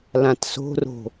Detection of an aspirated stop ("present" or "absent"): absent